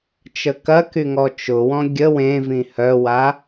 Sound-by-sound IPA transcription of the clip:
t͡ʃəkɐky ŋɔt͡ʃʊwɔ̃ ɡʲə wẽvĩ hœwa

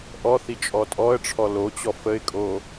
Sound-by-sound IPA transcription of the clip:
ʔɔθi t͡ʃʼɔtʼɔə̯ʈ͡ʂʰɔ lot͡ɕɔ fəɪ̯kʼo

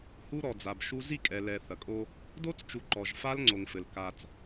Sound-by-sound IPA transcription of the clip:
hu˦ɾɔ˨ d͡za˨bʃu˦ zi˦˨kʼɛ˨lɛ˨ θɐ˨kʼo˦ | do˦t͡st͡ʃu˨ ǃɔ˨ʒfa˦l ŋ͡ǀo˨ŋfɘ˨l ka˦t͡s

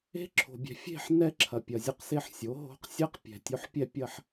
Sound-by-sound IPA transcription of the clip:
e̤˦˥ǁʰo̤˨bʲɛ̤˨ fʲe̤˥˧ħ nɛ˥˧ǁʰɐ˨ pʲɐ˨zʲo˥˧q se˥˧ħ sʲo˩˥ɦo̤˦˥q sʲɛ˦˥q pʲɛ̤˨tʲo˦˥ħ pʲɛ˥˧pʲɐ˥˧ħ

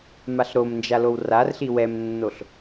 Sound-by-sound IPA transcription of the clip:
maɬɾomnd͡ʒalow rarɬi wɛmnːoɬ

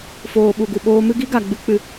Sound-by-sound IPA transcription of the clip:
foː˨ɓu˨ɡu˨ɓoː˧ mɨ˦ɡi˦ɡa˨ ɡ͡bɨ˧k͡pɨ˨

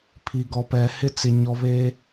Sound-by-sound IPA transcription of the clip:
pʰi˨ɡɔ˨pɛ˨ hɪ˦t͡sɪ˨ɲɔ˨βe˦

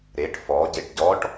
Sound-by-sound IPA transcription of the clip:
ɾeʈ fɔɟeʈ ɟɔʈ

